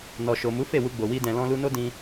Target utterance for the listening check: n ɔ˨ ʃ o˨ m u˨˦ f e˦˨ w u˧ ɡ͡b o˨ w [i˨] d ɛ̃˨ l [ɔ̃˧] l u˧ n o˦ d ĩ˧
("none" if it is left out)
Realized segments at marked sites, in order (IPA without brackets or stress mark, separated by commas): i˧, ɔ̃˧